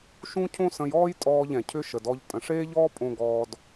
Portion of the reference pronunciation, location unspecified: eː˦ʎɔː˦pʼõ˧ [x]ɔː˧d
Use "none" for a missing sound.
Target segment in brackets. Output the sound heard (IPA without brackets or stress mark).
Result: ɡ